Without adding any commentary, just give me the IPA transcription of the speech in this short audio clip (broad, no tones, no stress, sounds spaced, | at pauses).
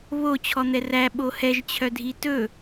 β o t͡ɕʰ ɔ n̪ ɛ r æ ɓ o h ɛ ʒ t͡ɕʰ œ dʱ i t ɵ